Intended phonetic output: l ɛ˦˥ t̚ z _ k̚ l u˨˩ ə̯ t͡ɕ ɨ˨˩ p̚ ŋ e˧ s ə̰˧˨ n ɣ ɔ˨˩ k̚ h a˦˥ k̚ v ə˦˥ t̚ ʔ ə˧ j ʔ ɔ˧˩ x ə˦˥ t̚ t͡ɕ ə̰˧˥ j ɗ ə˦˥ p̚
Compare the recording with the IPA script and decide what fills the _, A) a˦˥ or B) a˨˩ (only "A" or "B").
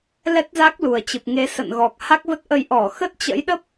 A